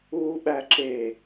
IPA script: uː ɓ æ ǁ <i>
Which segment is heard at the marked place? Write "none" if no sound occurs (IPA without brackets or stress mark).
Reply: e